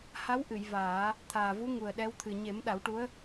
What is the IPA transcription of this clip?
h a˧˥ w ʔ ɨ˨˩˨ j v aː˨˩˦ | t̪ʰ aː˨˩ v u˧˥ ŋ u˨˩ ə̯ ɗ ɛ˧˥ w t̪ʰ ɨ˨˩ ɲ e˨˩˦ m ɗ a˨˩˦ w ʈ u˧˥ ə̯

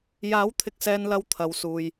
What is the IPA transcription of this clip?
j aː˨˥ w t̪ʰ ɪ˨ k̚ s ɛː˨ n l ɐ˨ w t̪ʰ ɐ˨˧ w s uː˨ j

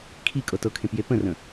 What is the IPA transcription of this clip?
kʰ i kʼ ɤ t ɤ kʰ ẽ p j e p ə̃ r ə̃

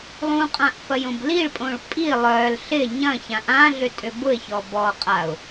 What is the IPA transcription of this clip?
lˠ ũ qʼ ã ʔ f ɐ j õ b l i ɭ pʼ õ ɭ pʼ i lˠ œ l ɬ ɪ ɲ ɐ̃ ç ã ʔ ã ɮ ʏ tʼ ʏ b ʊ ɪ̯ ç ɔ b ɔ qʼ a ʊ̯

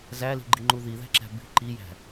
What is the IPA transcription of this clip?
z æ l i̤ ɡ͡ǃ i ŋ͡ǃ u ð i ð æ̤ ǁ æ̤ b i̤ ǃ i j æ̤

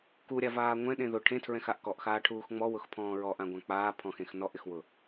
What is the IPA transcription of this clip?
k u ɾʲ a v aː ŋʷ ɛ̃ ɗ ẽ ð ʊ ʈʰ ẽ tʰ ɹ ɛ̃ x a ʔ k ɔ ʔ x aː ʈʰ uː x ŋ͡m ɔ w ʊ x pʰ ɔ̃ː ɹ ɔ ʔ ã ɡʷ ã k͡p aː pʰ ɔ̃ x ẽ x n ɔ ʔ ɪ x w ʊ

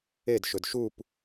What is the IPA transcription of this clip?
e d ʃ ɵ d ʃ u p

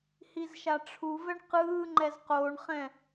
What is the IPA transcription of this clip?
h i z ʃ a ʈ͡ʂʰ u v ɛ ɳ q ɯː ŋ͡ǃ ɛ z q oː ɳ χ ɛ̃

